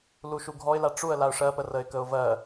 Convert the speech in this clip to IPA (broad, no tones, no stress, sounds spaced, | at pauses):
l u ʃ u ɡʱ ɔ ɪ̯ l a ʈ͡ʂ u ə̯ l a ʊ̯ ʂ ɜ p ə r ə ɪ̯ k ə ʊ̯ v ɜ